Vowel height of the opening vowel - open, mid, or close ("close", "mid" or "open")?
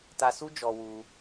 open